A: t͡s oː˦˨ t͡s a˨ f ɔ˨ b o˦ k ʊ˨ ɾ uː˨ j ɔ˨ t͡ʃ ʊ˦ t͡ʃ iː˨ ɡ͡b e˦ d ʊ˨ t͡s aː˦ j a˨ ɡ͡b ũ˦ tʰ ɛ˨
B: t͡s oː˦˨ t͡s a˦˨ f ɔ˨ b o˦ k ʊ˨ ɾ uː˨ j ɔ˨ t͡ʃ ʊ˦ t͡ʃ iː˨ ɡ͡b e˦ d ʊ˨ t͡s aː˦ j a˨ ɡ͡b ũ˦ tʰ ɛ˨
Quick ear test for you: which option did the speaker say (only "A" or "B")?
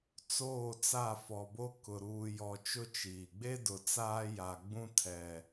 B